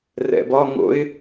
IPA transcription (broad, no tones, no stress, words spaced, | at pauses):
rɛ̰bɒŋo̰ɪ̯